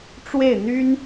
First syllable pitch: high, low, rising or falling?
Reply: falling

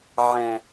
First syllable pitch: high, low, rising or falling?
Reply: low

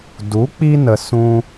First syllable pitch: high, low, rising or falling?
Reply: rising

